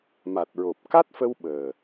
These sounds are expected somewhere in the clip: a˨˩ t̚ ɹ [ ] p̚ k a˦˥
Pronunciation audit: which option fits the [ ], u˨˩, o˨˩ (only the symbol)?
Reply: o˨˩